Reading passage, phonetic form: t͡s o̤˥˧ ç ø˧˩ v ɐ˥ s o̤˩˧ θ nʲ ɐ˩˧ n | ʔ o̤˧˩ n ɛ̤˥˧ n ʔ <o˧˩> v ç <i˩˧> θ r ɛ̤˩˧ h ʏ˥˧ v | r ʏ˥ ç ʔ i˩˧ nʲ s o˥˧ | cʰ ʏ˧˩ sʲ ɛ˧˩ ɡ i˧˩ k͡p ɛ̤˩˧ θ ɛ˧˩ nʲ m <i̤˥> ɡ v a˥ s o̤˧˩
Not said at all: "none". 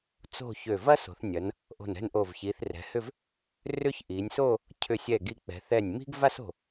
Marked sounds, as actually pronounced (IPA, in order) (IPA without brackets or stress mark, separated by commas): o˧˩, i˩˧, i̤˥